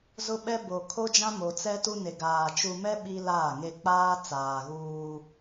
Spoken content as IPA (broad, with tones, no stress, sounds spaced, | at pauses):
z ʊ˦ ɓ ɛ˦ b o˨ kʰ o˦ d͡ʒ ã˦ m o˨ t͡s ɛ˦ t u˦ n e˨ ɡ aː˨ t͡ʃ u˨ m ɛ˦ ɓ i˦ l aː˦˨ ŋ e˦ k͡p aː˦ t͡s aː˨ ɣ uː˦